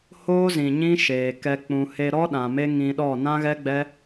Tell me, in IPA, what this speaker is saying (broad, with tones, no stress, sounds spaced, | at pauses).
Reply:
h oː˦ z ĩ˨ ɲ ĩ˦ ʃ eː˨ k ɛ˧ k͡p ũ˨ h e˧ ɾ ɔ˦ ɗ ã˨ m e˦ ŋ ĩ˧ ɗ ɔ˦˨ n ã˦ ɣ ɛ˦ ɡ͡b ɛ˦